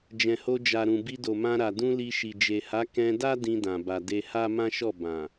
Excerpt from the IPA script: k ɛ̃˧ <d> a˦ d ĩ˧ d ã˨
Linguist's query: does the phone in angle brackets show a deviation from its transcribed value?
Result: no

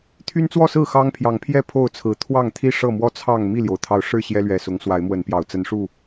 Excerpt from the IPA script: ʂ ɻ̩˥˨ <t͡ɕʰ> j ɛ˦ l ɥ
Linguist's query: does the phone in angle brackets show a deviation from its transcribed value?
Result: yes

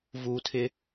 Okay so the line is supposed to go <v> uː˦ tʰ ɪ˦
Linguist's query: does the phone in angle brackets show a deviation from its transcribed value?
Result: no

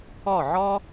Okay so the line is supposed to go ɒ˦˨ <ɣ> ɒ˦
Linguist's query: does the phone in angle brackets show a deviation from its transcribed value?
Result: yes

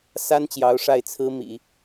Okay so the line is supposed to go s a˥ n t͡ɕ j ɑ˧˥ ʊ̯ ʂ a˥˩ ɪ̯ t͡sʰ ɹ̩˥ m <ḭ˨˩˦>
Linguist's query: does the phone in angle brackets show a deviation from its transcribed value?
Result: no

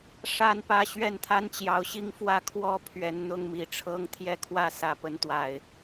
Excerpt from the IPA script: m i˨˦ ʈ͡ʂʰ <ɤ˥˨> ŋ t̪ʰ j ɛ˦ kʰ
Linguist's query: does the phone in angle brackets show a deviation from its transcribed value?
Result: yes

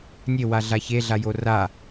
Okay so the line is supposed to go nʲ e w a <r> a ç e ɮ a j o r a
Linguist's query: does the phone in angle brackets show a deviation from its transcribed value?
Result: yes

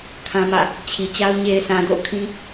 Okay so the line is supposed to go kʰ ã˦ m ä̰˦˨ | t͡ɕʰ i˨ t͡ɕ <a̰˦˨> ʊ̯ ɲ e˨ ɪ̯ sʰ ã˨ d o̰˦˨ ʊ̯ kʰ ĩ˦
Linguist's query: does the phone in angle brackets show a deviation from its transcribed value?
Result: yes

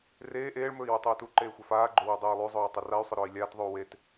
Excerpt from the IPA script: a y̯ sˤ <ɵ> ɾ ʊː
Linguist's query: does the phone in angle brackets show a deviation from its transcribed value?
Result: yes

